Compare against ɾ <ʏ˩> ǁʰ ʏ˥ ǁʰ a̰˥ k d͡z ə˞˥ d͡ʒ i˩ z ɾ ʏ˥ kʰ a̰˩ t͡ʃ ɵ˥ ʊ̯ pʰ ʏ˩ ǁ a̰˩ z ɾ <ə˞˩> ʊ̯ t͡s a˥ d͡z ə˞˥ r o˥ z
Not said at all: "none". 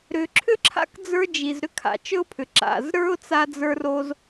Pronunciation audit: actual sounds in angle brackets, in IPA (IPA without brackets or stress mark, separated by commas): ʏ˩, ə˞˥